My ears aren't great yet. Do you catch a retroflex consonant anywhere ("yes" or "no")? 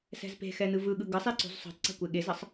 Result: no